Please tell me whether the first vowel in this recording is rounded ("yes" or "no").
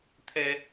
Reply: no